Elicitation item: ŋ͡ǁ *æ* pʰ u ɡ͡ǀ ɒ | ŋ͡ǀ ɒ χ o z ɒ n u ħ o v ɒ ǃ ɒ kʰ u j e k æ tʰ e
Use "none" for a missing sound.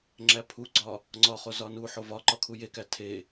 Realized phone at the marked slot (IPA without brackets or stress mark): æ